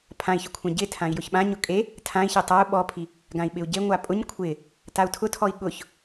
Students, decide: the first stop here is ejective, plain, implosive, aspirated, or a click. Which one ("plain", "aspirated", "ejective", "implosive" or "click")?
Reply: aspirated